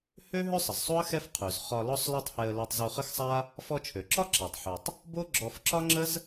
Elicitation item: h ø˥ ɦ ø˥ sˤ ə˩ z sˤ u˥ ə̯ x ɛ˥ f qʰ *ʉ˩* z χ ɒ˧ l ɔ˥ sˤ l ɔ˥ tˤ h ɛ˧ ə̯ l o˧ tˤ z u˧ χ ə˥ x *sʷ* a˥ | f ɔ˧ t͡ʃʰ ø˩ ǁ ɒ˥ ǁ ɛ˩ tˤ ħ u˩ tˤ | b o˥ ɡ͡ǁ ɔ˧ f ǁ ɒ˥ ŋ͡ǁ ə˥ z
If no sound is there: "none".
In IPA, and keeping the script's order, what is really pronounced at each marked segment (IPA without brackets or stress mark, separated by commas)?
ʉ˩, sˤ